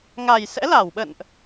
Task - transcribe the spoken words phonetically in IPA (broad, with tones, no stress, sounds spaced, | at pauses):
ŋ a˨˩ j s ɛ̰˧˥ l a˧˩ w ɓ ə̰˧˨ n ʔ